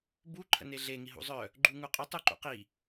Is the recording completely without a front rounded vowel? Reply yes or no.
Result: no